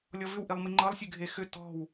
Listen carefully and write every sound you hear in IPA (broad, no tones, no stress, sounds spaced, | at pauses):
lʲ ɔ v ʏ w ʔ i lˠ m i ŋ͡ǃ ɤ lˠ sʲ ɨ ɡʱ e x ʏ t ɔ̤ w